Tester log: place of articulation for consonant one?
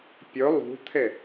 labial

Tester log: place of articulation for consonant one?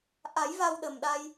glottal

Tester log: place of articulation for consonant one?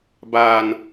labial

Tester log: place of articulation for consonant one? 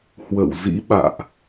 glottal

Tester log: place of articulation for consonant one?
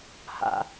glottal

